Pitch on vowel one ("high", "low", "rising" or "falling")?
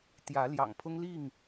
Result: rising